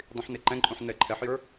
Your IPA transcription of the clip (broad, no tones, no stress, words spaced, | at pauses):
dˤĩħneǃɛ̃ǃʼũħ nɛǃʰɛħjə˞